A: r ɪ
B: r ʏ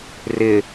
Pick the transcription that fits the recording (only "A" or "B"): A